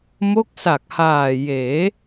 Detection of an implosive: absent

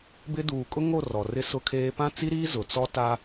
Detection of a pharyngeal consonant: absent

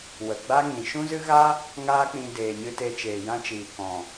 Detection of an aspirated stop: absent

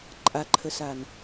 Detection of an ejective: present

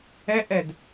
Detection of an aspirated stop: absent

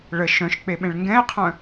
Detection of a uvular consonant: present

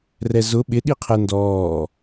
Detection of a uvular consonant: present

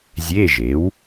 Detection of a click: absent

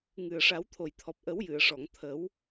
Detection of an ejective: absent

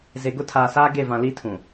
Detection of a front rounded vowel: absent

